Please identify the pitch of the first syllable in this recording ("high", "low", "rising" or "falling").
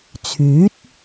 rising